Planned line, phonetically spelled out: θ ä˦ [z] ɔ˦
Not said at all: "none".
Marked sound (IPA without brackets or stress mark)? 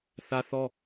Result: θ